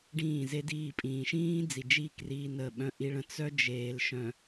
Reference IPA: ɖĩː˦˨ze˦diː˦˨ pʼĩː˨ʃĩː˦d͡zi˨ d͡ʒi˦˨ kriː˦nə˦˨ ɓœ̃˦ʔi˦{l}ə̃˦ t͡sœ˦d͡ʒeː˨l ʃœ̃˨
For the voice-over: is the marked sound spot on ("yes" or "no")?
no